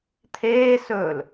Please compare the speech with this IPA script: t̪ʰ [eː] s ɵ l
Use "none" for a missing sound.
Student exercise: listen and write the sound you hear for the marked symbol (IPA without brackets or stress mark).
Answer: eː